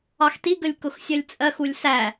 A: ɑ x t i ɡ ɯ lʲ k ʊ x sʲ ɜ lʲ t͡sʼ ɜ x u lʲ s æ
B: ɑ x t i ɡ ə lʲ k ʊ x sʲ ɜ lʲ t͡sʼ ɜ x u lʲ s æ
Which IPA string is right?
B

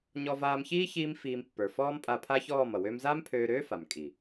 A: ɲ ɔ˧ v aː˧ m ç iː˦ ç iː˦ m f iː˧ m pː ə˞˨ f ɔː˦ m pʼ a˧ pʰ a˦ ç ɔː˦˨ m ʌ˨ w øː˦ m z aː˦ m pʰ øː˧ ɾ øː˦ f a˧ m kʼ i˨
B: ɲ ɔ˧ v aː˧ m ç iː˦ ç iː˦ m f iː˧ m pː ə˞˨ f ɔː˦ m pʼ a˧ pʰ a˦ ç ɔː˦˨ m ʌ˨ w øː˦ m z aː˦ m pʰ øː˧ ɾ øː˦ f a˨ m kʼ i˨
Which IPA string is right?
B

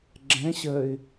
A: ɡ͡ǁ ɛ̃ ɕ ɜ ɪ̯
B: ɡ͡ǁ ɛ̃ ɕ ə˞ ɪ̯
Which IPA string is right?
A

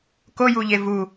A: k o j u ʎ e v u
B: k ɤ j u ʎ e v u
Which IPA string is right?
A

